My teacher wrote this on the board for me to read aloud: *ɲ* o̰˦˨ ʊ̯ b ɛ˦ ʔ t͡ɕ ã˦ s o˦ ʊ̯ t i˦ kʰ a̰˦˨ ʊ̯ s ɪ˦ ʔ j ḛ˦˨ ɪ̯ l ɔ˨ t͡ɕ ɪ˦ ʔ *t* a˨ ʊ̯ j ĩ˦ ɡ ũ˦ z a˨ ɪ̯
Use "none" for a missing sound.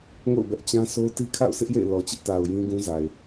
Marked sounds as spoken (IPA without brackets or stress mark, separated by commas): ŋ, t